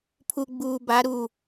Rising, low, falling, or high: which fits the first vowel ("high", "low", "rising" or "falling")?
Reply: low